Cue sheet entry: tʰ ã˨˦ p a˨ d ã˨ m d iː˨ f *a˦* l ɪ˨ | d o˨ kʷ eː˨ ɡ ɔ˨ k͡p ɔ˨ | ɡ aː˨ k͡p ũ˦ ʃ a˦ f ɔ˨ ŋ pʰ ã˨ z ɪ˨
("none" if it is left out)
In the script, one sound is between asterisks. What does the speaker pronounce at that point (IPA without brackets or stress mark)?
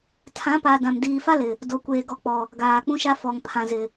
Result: a˦